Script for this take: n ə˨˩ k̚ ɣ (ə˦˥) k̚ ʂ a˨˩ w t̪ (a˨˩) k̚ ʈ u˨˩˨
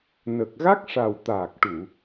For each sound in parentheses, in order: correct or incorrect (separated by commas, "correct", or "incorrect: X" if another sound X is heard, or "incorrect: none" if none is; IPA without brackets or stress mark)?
incorrect: a˦˥, incorrect: aː˨˩